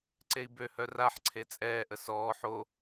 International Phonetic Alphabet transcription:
ǀ e i̯ b ø h œ r a ħ ǀʰ e t͡sʼ ɛː ʔ ə s ɔː ħ o

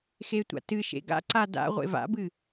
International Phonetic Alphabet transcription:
x e tʷ a̰ t ɨ ʃ ḛ ɡ a̰ ǀ a d a̰ ʁʷ ḛ v a̰ b ɨ

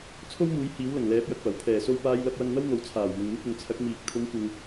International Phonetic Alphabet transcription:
t͡sʰ o˥ w m uː˨˥ j h iː˨˥ w l ɐ˨˩ ŋ l ɛː˨˥ p̚ j ɐ˨ k̚ p ɐ˨˩ w pʰ ɛː˨˩ s o˧ w p aː˧ j l ɐ˧ p̚ w ɐ˧ ŋ n̪ ɐ˥ w ŋ o˨ w t͡sʰ aː˨˩ w m ʊ˨ ŋ m ɪ˧ k̚ ʊ˨ ŋ t͡sʰ ɐ˨˥ k̚ m iː˨ k̚ t̪ʰ ʊ˨˧ ŋ kʷ ɪ˨ ŋ

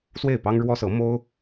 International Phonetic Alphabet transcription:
s w e˥˩ ɪ̯ p ɑ˥ ŋ ɻ w ɔ˥ s ɤ˧˥ m o˥ ʊ̯

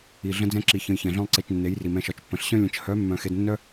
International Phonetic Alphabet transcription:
i˨ ɮ ə̃˧ d͡z ɛ̃˧ ǁ i˨ ç ə̃˧ j ç ɛ̃˨ ɮ œ̃˦ lˠ ǀ e˧ t͡ʃ nː e˨˦ j r i˨ m ɛ̃˧ ʃ ɒ˨˦ t͡ʃ pː ə̃˨ ɬ ɕ œ̃˦ lʲ ə̃˨˦ t͡ʃ h œ˨˦ mː œ̃˨ x e˧ d nː œ˦

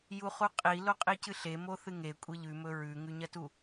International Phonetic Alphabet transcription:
j u χ u qʼ i l o qʼ i c ɨ ɬ e m o θ ɨ ŋ e kʷʼ e ʎ ʉ m ɵ ɹ ʉ ŋ ʉ ɲ ɐ t u

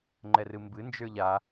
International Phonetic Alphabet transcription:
ŋ͡ǃ ɛ r ɨ m b ɨ n d͡ʒ ə˞ ʎ a

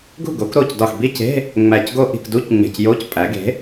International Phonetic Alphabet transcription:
ɡ ṳ˥˩ ɡ o˩˥ k ɾ o˥˩ c d ɒ˧˩ x b i˥˧ c e̤˧˥˧ | ŋ͡m æ˧˩ c ɡ o˥˧ ʔ i̤˥˩ k d u˧˥˧ c ŋ͡m e̤˧˩ c j o˧˥˧ c pʼ æ˩˥ ɡ e̤˩˥

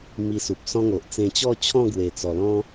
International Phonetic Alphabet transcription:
m i˧ s u˨ p̚ s ɔ̃˦ ŋ o˨ ʔ t͡s ẽ˧ t͡ɕ ɔ˥˧ t͡ɕʰ ɔ̃˥˧ ɡ w e˨˩ t͡s ɔ˨˩ l ɔ̃˦

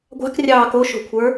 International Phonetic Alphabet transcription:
ɡʷ a̤ k rʲ ɑː k o ʃ o̤ kʷʰ ə˞

